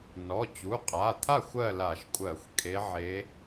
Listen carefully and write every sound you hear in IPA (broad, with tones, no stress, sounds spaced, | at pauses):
n ɔ˩˧˩ t͡ɕ u˩˧˩ qʼ a˩˧˩ t̪ʰ a˥˨ xʷ ɜ˥˨ l a˧˩˧ ʃ kʷʼ ɜ˧˩˧ xʷ kʼ e˧˥ ʕ e˧˥